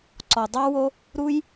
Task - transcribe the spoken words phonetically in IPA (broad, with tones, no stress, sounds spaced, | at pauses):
ǀ ɔ˨ dˤ ɑ˦ w o˦ | ɾ u˦ j